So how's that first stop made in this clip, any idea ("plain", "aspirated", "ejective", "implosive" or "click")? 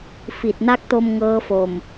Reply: plain